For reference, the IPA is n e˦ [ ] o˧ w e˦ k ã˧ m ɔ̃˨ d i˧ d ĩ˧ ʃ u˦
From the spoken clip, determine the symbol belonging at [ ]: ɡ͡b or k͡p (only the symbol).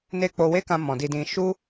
k͡p